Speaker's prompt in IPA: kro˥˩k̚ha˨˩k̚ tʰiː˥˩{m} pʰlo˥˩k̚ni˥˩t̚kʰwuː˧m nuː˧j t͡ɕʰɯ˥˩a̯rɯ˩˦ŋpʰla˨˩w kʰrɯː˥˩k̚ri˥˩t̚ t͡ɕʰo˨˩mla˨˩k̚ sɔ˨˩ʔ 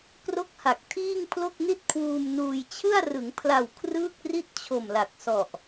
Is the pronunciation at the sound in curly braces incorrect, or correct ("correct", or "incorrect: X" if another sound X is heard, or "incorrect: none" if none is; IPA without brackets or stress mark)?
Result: incorrect: ŋ